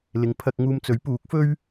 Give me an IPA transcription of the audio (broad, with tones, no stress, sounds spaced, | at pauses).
l ɪ˨˧ ŋ pʰ ɐ˧ k̚ ŋ uː˧ m t͡s ɵ˨˥ ɥ p uː˨˥ k̚ f ɵ˥ ɥ